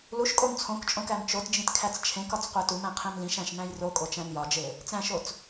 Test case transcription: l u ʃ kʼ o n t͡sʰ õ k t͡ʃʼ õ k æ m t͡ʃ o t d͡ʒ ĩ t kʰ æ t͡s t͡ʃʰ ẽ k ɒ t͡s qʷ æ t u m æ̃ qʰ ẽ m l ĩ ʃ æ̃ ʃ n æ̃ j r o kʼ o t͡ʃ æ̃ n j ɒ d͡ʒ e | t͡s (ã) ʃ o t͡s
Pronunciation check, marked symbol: incorrect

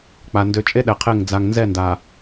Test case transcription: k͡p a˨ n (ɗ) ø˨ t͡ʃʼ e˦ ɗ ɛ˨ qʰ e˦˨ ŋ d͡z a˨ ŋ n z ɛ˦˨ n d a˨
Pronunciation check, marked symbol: incorrect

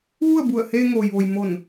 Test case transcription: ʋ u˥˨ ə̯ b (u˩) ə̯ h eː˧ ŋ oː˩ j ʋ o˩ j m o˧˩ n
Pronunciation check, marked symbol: incorrect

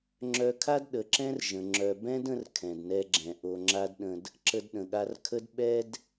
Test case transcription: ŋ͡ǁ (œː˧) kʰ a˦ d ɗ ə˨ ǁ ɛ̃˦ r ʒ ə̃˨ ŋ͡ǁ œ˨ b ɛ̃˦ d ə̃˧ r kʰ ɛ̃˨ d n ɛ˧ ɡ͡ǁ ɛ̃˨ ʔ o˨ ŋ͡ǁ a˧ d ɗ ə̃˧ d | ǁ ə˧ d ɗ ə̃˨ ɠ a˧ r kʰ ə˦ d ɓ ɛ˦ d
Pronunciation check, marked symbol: incorrect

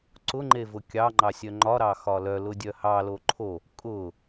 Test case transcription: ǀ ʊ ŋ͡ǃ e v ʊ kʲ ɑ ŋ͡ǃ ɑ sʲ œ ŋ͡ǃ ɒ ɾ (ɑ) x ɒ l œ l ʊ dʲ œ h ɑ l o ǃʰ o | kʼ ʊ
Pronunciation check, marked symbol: correct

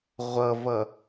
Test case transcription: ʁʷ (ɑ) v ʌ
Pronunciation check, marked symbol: incorrect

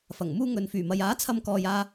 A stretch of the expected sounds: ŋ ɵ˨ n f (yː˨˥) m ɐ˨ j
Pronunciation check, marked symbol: incorrect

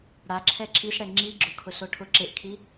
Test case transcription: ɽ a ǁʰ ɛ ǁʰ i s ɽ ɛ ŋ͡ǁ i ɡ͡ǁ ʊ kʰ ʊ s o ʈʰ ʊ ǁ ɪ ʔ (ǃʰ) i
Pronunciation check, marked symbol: incorrect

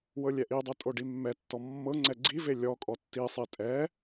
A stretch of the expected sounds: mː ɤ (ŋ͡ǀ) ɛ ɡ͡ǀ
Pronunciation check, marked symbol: correct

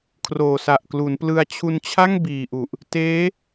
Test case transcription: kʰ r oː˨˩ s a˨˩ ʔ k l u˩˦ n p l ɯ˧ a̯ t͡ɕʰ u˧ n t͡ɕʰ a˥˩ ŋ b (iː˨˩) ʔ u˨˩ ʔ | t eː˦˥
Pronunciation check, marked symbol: correct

